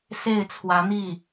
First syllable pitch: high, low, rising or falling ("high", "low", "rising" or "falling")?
falling